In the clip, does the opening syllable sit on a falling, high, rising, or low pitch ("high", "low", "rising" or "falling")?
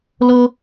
high